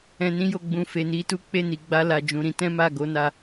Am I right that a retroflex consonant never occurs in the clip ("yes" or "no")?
yes